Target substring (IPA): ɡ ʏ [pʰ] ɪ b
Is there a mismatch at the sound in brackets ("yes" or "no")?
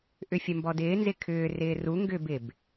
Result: yes